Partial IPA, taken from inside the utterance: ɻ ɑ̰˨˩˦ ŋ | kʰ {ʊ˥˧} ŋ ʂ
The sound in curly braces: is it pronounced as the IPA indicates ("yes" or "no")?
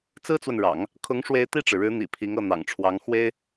no